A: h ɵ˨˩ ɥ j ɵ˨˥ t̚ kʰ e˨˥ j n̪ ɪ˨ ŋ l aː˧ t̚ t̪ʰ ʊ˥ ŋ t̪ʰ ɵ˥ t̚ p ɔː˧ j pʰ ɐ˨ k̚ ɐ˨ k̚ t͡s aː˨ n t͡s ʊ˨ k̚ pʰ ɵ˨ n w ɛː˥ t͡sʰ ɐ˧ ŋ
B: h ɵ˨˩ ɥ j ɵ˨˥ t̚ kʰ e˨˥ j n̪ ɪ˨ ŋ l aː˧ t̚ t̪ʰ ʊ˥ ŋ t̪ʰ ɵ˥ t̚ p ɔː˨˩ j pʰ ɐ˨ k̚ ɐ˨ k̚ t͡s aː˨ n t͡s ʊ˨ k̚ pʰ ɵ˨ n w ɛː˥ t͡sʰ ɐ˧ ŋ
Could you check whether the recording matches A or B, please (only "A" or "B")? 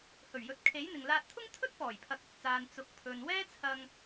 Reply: B